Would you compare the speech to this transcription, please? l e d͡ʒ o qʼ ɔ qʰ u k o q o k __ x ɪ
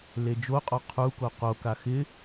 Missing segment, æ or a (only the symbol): a